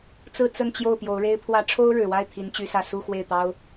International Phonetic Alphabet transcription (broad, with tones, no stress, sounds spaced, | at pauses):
t͡s ɹ̩˥˧ t͡s ə˥˧ n t͡ɕ j o˥˩ ʊ̯ p j o˧˥ ʊ̯ ɻ e˥ ɪ̯ pʰ w ä˥ ʈ͡ʂʰ o˥ ʊ̯ ɻ ɻ̩˨˩ w a˥˩ ɪ̯ t̪ʰ i˧˥ n t͡ɕ y˧˥ s ä˥˧ s u˥˧ x w e˥˩ ɪ̯ t̪ ɑ˥ ʊ̯